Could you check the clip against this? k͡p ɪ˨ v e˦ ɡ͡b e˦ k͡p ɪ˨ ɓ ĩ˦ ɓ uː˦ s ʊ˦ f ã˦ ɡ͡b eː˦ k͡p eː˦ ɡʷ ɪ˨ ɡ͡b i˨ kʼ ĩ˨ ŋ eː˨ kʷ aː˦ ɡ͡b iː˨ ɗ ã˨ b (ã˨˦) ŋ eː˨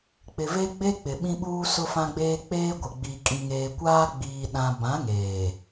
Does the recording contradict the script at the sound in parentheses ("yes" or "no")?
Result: no